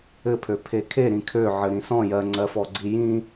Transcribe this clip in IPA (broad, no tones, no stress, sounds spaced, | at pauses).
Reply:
ɘ pʰ ø pʰ e kʰ e ɾ ĩ kʰ ø ʕ ɘ ɾ ĩ s ɔ̃ j ɜ ŋ͡ǀ ɜ f ɔ ɡ͡ǀ i j ĩ